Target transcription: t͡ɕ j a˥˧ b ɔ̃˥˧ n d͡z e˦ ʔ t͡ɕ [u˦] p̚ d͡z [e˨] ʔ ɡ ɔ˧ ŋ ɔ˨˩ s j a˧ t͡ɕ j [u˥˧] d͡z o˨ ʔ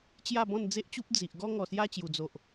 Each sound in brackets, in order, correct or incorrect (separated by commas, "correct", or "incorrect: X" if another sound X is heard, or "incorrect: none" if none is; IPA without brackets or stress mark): correct, incorrect: i˨, incorrect: u˨˩